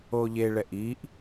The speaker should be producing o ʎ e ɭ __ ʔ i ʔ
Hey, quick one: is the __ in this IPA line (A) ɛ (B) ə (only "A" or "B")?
A